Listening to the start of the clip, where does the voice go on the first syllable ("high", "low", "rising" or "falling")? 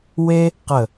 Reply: high